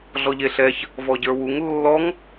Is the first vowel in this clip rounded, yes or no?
yes